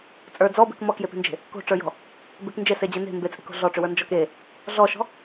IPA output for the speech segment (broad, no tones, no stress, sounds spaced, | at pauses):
t͡sʼ ə˞ d͡z ɔ b e̤ k m ɔ k j e p e̤ n d͡ʒ e̤ | k o̤ ʈ͡ʂ ə˞ j ɔ̤ | b e k n d͡ʒ e s e d͡ʑ e n e̤ m b e t͡sʼ e̤ k o̤ ɮ ɔ ʈ͡ʂ ʏ w ə˞ n d͡ʒ ɔ k e | ɮ ɔ ʃ ɔ̤